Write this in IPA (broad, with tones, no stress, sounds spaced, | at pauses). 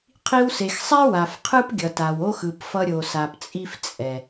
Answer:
qʰ i˧ w s e˨ x sˤ ɛ˦ w a˨ f qʰ ɯ˦ p ɡʲ ʌ˨ t a˨ w o˦ x ɯ˨ p f ʌ˧ ɾʲ o˨ s a˨ p t͡sʼ i˦ f t͡sʼ ɛ˨